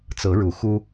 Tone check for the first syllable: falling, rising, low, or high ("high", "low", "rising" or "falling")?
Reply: rising